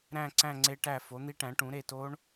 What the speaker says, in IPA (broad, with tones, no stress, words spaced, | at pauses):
ɾæ̃˦˨ǀæ̃˦˨ ŋ͡ǀe˦˥ʈæ˦˨ fo˨˥n̪i˦˥ʈæ̃˨˥ʈũ˨˥ ɾe˦˨to˦˥ɳ